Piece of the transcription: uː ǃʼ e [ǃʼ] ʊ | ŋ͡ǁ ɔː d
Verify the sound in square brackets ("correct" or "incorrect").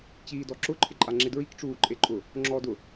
correct